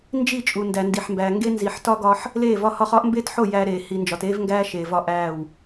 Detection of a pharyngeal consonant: present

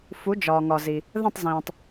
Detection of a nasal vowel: present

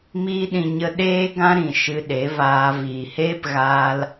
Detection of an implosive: present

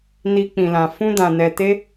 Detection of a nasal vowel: present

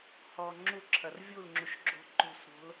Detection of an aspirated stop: present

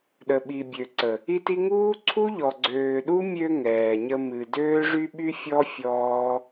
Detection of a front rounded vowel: present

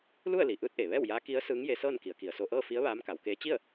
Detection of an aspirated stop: absent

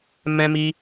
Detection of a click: absent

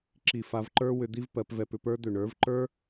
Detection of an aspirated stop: absent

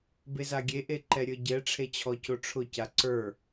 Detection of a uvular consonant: absent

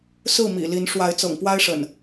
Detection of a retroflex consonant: present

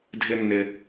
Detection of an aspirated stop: absent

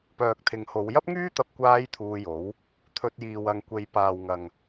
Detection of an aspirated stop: present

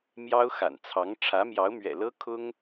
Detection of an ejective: absent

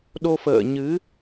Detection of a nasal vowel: absent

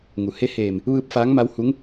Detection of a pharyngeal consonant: absent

